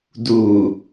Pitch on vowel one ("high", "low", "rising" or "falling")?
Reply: low